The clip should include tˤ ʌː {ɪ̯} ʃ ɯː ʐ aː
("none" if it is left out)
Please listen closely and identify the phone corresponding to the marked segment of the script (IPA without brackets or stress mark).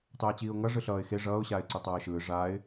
ɪ̯